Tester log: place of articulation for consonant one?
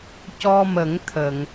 palatal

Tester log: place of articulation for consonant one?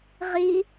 uvular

